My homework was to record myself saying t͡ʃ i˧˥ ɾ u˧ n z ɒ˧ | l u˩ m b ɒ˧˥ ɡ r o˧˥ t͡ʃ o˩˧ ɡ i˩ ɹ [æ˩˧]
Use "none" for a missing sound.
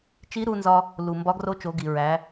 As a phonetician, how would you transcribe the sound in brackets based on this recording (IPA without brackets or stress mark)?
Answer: æ˩˧